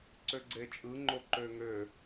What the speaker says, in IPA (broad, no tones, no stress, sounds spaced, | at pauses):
ǀ ø ɡ͡ǀ e t͡ʃʼ ɯ ŋ͡ǃ o ǃ ø ŋ ø